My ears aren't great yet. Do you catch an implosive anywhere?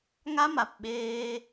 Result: yes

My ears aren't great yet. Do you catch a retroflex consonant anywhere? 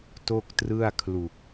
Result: no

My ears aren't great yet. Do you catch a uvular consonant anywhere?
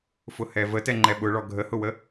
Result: no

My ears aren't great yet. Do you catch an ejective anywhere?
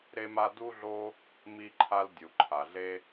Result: no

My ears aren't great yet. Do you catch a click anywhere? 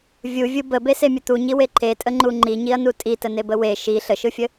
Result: yes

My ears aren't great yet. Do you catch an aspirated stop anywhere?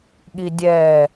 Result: no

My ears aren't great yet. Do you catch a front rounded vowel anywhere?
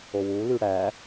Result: yes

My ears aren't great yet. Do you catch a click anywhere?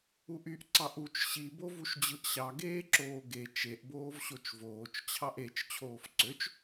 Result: yes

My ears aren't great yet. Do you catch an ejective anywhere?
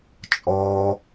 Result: yes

